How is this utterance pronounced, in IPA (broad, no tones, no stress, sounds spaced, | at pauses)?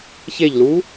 ç e ʎ l u